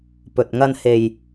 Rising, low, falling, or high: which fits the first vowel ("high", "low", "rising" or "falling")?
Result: low